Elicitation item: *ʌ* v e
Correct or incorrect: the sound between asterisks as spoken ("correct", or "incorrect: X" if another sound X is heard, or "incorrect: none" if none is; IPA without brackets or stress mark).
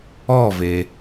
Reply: incorrect: ɔ